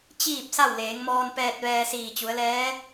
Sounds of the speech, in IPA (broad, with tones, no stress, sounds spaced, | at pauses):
t͡ɕ iː˥˨ p̚ s a˥˨ w l eː˩˧ ŋ m ɔː˧ n p ɛː˧ t̚ ʋ ɛː˧ s iː˧˩ t͡ɕ u˩˧ ə̯ l ɛː˧˥